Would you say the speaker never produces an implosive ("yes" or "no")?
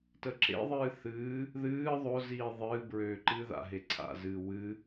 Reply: yes